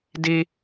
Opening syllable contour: high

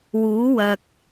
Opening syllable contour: rising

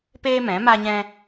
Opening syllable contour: high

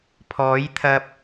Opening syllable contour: rising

